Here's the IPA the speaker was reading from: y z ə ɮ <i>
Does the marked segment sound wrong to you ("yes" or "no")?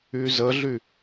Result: yes